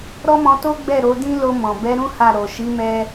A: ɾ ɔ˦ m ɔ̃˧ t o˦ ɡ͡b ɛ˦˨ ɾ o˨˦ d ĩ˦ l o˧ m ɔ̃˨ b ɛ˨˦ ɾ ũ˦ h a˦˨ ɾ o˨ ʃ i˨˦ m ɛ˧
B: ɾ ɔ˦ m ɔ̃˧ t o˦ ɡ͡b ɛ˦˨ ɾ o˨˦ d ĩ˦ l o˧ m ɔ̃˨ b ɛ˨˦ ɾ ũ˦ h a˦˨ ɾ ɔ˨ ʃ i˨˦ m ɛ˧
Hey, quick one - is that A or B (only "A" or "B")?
A